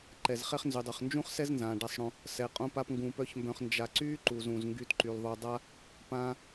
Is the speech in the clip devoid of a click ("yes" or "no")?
no